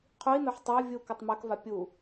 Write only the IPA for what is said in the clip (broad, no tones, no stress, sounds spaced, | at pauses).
qʰ u i̯ n o ħ tˤ a vʲ u k a tˤ m a k v a pʲ u